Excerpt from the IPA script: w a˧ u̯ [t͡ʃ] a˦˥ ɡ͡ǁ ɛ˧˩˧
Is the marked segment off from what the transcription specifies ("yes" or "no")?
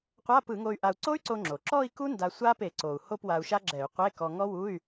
yes